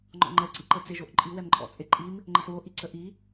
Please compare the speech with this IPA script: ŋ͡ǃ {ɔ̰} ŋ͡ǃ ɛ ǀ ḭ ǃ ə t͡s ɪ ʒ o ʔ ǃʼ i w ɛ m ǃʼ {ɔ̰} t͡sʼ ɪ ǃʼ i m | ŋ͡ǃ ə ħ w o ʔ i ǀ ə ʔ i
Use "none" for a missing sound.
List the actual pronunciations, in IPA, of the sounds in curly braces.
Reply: ɔ̰, ɔ̰

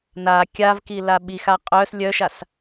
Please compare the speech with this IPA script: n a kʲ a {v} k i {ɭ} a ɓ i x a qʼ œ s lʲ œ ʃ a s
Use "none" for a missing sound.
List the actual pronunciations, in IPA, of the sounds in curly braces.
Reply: v, l

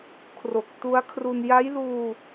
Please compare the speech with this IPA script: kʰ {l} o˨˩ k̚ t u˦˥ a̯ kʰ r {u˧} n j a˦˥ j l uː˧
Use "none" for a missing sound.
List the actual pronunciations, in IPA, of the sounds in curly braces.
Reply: r, u˧

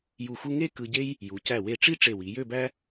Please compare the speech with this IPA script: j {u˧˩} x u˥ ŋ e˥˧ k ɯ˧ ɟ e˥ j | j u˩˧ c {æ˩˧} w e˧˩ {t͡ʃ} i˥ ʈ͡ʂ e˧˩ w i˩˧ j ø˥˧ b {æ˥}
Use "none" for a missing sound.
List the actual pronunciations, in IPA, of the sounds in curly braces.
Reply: u˧˩, æ˧˩, ʈ͡ʂ, æ˥

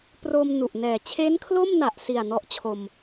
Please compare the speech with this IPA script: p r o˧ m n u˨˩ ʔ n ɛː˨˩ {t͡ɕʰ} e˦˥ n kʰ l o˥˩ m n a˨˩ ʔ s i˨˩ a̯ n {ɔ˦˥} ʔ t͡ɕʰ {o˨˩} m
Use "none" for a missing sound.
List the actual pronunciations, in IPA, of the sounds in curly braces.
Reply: t͡ɕʰ, ɔ˦˥, o˧

